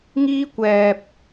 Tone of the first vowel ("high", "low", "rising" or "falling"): high